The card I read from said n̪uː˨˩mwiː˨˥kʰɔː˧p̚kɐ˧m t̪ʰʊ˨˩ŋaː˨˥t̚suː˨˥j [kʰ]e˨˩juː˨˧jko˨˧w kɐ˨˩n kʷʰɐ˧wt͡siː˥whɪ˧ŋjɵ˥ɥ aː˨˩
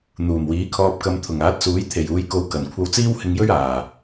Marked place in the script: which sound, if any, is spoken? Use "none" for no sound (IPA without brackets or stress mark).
t̪ʰ